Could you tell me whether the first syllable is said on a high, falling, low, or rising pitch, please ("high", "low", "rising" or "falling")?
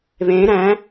rising